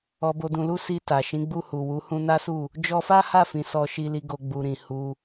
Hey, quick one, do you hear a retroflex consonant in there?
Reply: no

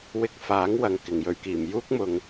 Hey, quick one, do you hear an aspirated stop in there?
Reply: no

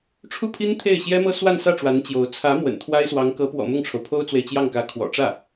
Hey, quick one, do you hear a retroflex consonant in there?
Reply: yes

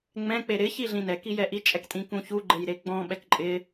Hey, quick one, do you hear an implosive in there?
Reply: yes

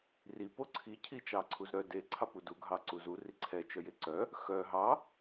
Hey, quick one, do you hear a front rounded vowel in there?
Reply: yes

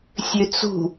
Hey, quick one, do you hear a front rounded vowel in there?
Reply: yes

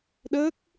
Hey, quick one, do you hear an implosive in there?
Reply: yes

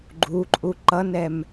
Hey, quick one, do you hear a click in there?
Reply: yes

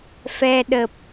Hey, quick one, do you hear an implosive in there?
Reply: yes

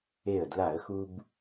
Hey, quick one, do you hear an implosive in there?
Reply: no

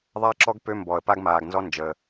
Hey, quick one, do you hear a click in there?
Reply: yes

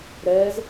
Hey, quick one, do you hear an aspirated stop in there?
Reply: no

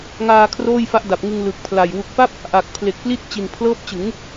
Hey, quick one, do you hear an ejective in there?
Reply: no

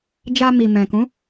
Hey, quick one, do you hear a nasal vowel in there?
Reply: yes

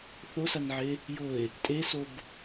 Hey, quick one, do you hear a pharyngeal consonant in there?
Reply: yes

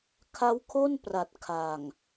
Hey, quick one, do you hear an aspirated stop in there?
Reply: yes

